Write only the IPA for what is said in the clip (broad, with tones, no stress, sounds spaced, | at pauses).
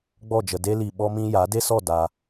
ɡ͡b ɔ˦˨ d͡ʒ ə˨ d e˦ l i˨ ɓ ɔ˦ m ĩ˦ j a˨˦ d e˦ s ɔ˦˨ d a˧